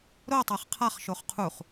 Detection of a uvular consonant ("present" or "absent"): present